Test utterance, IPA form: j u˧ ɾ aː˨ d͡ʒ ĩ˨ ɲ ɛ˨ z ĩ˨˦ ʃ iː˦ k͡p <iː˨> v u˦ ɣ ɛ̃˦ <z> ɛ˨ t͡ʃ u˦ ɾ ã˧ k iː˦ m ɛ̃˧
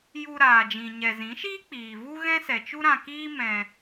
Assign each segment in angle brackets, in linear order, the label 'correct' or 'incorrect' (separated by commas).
correct, incorrect